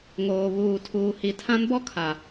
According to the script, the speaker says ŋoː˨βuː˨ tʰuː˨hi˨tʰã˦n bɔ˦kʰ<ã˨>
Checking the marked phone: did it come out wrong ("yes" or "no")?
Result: yes